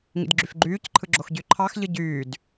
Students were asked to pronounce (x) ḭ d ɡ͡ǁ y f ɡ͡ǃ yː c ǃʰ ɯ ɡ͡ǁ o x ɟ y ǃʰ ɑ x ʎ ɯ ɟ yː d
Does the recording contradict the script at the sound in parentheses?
yes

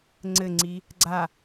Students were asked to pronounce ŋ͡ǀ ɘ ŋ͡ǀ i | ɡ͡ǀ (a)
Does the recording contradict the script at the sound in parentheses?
no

